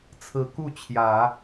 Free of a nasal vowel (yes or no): yes